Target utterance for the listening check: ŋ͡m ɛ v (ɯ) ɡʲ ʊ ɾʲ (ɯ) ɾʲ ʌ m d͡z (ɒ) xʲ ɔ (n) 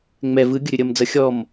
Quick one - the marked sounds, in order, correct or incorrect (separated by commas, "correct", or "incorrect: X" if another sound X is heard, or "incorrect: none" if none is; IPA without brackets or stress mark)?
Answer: correct, incorrect: ʊ, incorrect: ʌ, incorrect: m